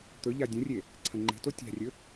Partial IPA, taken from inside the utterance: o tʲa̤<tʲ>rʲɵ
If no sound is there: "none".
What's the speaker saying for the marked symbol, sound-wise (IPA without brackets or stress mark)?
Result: none